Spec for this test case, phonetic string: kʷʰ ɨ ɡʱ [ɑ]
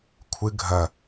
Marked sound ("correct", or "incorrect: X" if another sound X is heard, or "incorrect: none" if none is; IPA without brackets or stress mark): incorrect: ɐ